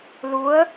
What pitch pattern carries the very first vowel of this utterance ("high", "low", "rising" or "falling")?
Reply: rising